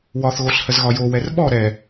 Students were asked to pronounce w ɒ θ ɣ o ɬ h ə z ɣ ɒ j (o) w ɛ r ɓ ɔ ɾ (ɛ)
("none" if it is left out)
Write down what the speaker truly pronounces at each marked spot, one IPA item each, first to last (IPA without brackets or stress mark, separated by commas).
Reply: o, ɛ